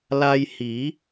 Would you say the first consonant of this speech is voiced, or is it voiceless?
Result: voiced